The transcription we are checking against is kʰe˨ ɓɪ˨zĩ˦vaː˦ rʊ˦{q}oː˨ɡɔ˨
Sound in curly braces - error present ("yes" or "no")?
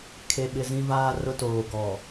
yes